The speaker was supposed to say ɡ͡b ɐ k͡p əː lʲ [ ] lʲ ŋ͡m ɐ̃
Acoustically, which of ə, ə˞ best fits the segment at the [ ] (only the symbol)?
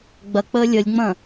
ə